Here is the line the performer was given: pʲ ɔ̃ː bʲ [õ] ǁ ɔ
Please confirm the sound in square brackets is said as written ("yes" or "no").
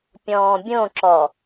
yes